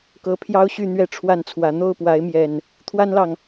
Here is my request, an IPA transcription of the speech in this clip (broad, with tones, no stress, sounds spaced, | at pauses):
k ɤ˨˦ pʰ j ɑ˦ ʊ̯ ɕ y˥˨ n̪ ɥ ɛ˥˨ ʈ͡ʂʰ w a˥˨ n t͡sʰ w ä˨˦ n̪ o˥˨ ʊ̯ p w a˨˦ ɪ̯ m j ɛ˨˩ n | t̪ʰ w a˦ n l ɑ˨ ŋ